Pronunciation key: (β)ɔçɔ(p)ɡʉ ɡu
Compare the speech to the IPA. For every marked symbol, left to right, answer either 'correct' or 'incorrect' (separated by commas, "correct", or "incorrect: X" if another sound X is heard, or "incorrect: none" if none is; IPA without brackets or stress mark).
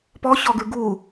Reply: incorrect: p, incorrect: none